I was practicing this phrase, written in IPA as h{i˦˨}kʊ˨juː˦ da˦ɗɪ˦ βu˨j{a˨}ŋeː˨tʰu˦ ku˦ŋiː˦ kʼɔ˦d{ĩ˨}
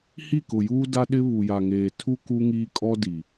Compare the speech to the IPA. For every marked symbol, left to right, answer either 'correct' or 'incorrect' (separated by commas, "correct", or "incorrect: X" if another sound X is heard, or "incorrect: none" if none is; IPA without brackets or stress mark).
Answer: correct, correct, incorrect: i˨